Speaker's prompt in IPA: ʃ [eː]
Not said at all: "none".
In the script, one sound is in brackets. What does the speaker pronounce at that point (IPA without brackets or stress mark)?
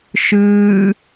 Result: ɨː